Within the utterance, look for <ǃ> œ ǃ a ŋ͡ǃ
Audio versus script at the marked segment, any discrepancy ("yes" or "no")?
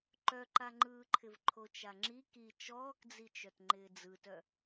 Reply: no